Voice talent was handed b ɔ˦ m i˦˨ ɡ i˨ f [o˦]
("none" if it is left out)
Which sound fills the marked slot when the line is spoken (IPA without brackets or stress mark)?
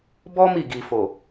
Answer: o˨